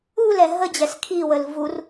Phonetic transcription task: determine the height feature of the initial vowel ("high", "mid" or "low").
high